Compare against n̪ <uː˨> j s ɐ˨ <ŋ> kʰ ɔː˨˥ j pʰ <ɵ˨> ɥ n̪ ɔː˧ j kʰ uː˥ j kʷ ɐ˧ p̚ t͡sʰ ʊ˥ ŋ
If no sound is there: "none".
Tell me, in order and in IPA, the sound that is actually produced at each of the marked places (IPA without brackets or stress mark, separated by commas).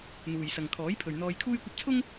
uː˨, ŋ, ɵ˨